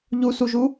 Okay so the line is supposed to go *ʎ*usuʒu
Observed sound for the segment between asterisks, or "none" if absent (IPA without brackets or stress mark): ʎ